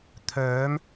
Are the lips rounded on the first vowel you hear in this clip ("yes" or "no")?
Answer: yes